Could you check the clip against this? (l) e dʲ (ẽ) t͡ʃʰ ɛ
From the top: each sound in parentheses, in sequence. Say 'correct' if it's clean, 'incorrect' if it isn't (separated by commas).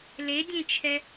correct, correct